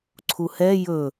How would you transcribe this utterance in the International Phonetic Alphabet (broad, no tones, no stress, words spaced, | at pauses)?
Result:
ǀʰuhɛ jɵ